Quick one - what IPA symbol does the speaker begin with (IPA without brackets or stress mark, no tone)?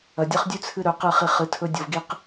ɐ